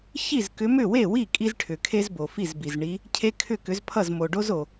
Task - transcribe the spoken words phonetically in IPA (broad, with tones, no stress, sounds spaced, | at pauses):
ç i˥˩ z k ʏ˨˦ m ʏ˥˩ w e˥˩ w i˥˩ kʼ i˦ z ʈʰ ʏ˩ kʰ e˦ z b o˩ f i˥˩ z b i˩ z ɳ i˨˦ | cʰ e˦ kʰ ʏ˥˩ k ʏ˨˦ z pʰ ʌ˥˩ z m o˩ ɖ o˦ z o˩